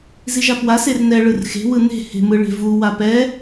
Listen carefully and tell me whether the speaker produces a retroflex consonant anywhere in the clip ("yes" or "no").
yes